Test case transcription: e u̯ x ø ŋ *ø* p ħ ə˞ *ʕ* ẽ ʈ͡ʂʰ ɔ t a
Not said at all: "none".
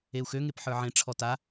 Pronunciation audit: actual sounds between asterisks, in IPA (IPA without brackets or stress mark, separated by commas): e, ʕ